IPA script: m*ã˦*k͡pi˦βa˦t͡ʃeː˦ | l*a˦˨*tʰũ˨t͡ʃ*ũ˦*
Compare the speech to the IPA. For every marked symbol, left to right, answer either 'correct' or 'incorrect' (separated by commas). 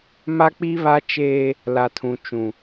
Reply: incorrect, incorrect, incorrect